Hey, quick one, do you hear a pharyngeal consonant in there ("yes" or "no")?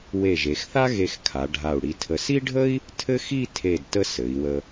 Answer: no